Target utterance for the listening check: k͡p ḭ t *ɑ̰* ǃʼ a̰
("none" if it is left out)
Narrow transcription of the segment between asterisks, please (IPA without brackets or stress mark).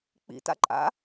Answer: a̰